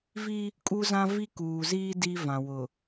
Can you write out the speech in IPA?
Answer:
vi˦ | kʼu˦zã˦ vi˦kuː˨ziː˦ di˦vã˨wʊ˨

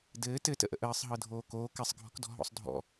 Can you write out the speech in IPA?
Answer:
dɘː tɘtə̰ʔə̰ ʔəːsˤɦɤ dʱoːkoː kɘsˤɡʱɔ̤kdɔ̤ ɦɔ̰sˤdʱɔ̰

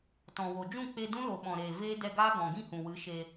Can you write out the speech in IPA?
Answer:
tɔ̃˨wo˨ d͡ʒũ˦˨k͡pe˧ dũ˦lo˨ ɓɔ̃˨ɾeː˨ veː˦ dɛ˧ɡaː˦ ɡɔ̃˨ɡĩ˦˨hũ˨wɨ˨˦ ʃe˧

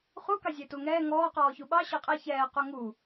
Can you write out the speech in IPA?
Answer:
χukɑ zʲetuŋɛː ŋɔːqɔː çuɓɑ ɕɤqʼe çɛːqu ŋu

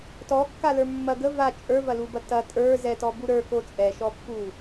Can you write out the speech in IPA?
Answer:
tɔkːalə˞ mːɐ ɡə va t͡ʃʼə˞vɐlubɐ tɐ tʼə˞ zɛtɔbu ɾə˞ko t͡sʼɛʃɔpːu

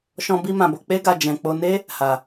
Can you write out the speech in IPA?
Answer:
ʃɔ̃˧bi˧mã˨bo˨ k͡pe˧ɡa˨ d͡ʒɛ̃˨k͡po˧ ne˦ | ha˨

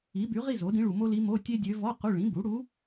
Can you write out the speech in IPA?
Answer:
i˩˥by˩˥ʁi˥˨ zo˩˥dĩ˧˥ɭu˨ mo˥li˧˥mo˧˥˧ tʲe˥dʲø˧˥ vɔ˧˥˧ qu˧˥˧ ɭĩ˩˥bu˩˥ɽu˧˥

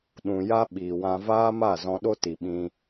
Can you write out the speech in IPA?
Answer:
ɗũ˨ja˦ ɓiː˨wã˧ vaː˦ma˦˨ zɔ̃˧ɗo˦ti˨ɓĩ˧

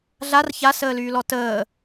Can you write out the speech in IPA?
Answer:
ɮar çasəːlyːlɔ təː

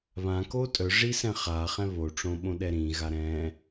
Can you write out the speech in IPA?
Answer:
βãko tʼœʐisɛ̃ χaχɛ̃ βoʈ͡ʂõɓõɗɛ ɾĩɣa ɾɛ̃

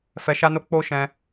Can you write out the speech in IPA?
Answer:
fɛ˧ʃa˦no˦ k͡po˦ʃɛ̃˧

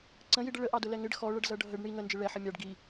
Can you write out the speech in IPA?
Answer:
ǀə̃jiɖə ɭəʔɑdʊlɛ ŋɪɖ xɔɭʌɖzʌ ɖʱəɖ ɳi ŋənd͡ʒɪ ɭɛħə mʲɑɖ ɡi

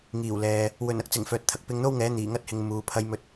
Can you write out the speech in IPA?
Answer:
ŋiː˨˩wlɛː˨ | wɵ˨˩nɐ˥k̚t͡sɪ˨˩ŋ fœː˨t̚t̪ʰɐ˨k̚ pɪ˧ŋn̪o˥wŋɛː˨˥ n̪iː˨˩ŋɐ˥t̚hɪ˨ŋ muː˨˧pʰɐ˥jmɵ˥t̚

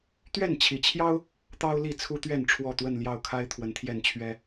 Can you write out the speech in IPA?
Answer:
t̪ɥɛ˥˨nt͡ɕʰi˨˩t͡ɕʰjɑ˦ʊ̯ | t̪ɑ˦ʊ̯li˥˨ t͡sʰu˦t̪ɥɛ˥˨n ʈ͡ʂʰwɔ˥˨t̪wə˥˨nljɑ˥˨ʊ̯kʰa˦ɪ̯ t̪ʰwə˨˦nt̪ʰjɛ˥˨nt͡ɕʰɥɛ˦

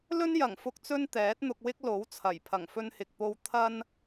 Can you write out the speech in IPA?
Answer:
lɵ˥njɐ˨˩ŋfʊ˧k̚ t͡sɵ˥nt̪ɛː˨˥t̚n̪ʊ˧k̚wɪ˥k̚ lo˨˥wt͡sʰɐ˨˩j pʰɐ˨˩ŋfɵ˧nhɪ˨k̚po˧w t̪ʰɐ˧n

